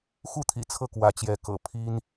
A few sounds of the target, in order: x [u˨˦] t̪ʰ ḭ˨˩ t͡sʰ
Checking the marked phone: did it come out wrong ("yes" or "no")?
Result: yes